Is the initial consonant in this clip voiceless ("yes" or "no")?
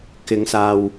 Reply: yes